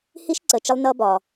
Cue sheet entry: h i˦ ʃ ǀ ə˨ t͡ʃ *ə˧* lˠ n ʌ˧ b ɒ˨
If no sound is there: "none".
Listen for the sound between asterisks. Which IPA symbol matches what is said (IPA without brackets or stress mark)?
ə˧